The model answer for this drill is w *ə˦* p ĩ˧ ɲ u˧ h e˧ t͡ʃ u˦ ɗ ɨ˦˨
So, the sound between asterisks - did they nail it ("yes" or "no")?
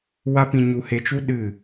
no